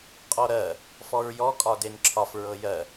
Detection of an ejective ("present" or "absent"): present